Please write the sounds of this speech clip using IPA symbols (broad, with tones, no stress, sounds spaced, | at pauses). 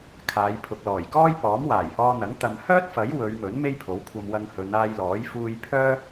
kʰ aː˨˧ j pʰ ʊ˨ k̚ l ɔː˨˩ j k ɔː˥ j p ɔː˨˥ m w aː˨˩ j h ɔː˧ n̪ ɐ˨˥ ŋ t̪ ɐ˨ m h œː˥ t̚ f ɐ˨˥ j w ɵ˨˧ ɥ m ɵ˨˥ n m e˥ j pʰ o˨˥ w kʷʰ ɐ˧ m w ɐ˧ ŋ h ɵ˨˧ n aː˧ j l ɔː˨˥ j f uː˧ j pʰ œː˥